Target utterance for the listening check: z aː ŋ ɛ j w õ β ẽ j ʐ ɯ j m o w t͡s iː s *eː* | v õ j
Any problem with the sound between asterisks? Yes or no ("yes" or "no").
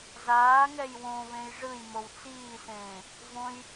yes